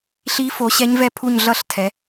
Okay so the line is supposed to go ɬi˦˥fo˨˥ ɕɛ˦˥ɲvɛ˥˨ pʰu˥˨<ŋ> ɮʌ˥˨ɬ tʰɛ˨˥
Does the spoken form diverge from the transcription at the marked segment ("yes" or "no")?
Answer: yes